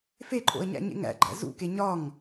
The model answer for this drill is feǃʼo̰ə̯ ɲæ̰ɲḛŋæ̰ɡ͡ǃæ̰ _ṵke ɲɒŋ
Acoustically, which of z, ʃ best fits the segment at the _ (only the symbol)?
z